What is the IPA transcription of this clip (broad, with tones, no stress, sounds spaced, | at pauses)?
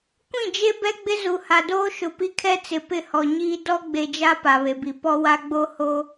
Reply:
kʷ ĩ˦˨ d͡ʒ e˦ b ɛ˦ ɡ͡b ɪ˦ z u˨ h a˨ d oː˦ ʃ ʊ˨ p i˦ kʰ ɛ˦ t͡s ɪ˨ p ɪ˦˨ h ɔ˨ ɲ iː˦ d ɔ˦ ɡ͡b e˨ d͡ʒ a˦ p a˨ β e˨ b i˨ p ɔ˦ w a˦ ɡ͡b o˦ h oː˦